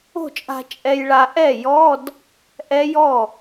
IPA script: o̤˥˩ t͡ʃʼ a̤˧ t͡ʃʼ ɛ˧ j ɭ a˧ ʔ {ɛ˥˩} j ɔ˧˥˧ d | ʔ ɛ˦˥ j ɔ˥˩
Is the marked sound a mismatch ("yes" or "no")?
no